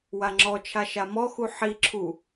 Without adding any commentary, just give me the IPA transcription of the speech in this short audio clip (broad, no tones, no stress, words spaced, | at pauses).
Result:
waŋ͡ǁɔt͡ʃʰa ʃamɔxu ħiǁʰu